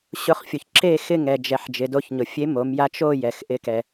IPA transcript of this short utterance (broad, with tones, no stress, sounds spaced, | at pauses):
ɕ ʊ˧ χ fʲ o˩ ç ǁ e˥˧ x ɪ˥˧ ŋ ɛ˩ d͡ʒ ɛ˩˧ ħ d͡ʒ ɪ˩˧ d o˧ ç ɲ ʊ˩ fʲ e˧˥ m o˩˧ m j a˧˥ t͡ʃ o˥˧ j ɛ˩ x ʔ ɪ˧˥ k ɛ˩